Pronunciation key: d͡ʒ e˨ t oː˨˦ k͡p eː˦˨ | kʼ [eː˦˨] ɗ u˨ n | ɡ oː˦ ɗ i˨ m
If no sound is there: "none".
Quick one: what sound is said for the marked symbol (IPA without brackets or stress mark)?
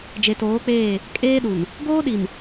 eː˦